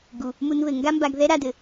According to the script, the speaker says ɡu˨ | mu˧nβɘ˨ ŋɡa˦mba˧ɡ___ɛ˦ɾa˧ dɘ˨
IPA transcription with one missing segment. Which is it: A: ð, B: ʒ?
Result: A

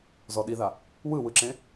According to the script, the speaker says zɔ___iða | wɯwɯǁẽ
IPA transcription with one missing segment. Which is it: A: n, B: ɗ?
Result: B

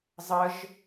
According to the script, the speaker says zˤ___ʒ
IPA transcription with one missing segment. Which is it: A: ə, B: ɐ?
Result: A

